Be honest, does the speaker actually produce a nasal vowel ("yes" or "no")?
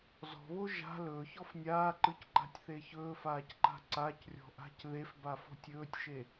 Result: no